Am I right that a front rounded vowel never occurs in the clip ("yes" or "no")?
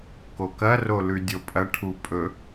yes